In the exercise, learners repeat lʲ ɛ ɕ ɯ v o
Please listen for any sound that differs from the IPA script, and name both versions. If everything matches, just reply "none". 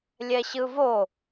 none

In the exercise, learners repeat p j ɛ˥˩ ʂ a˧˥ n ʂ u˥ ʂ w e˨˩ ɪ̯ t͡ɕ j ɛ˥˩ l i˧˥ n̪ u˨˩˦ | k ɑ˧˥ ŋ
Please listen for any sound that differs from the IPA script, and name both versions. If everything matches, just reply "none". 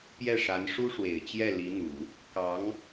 none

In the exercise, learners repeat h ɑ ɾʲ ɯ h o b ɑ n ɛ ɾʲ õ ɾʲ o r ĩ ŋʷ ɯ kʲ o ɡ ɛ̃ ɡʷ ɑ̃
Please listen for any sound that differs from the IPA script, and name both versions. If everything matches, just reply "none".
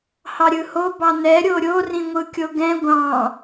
õ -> o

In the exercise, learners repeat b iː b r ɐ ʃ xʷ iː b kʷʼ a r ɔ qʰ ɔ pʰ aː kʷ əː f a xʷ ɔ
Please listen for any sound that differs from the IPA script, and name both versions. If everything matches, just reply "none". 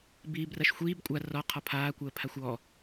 f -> pʰ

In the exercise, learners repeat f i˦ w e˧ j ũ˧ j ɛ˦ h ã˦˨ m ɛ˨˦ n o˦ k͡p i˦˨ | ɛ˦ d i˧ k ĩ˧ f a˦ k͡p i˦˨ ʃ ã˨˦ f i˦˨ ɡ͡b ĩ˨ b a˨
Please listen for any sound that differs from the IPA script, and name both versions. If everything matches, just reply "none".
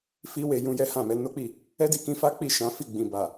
none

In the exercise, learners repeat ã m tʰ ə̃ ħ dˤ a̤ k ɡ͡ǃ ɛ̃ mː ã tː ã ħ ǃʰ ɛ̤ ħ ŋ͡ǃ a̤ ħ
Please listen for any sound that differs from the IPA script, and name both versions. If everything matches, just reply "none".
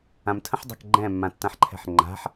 none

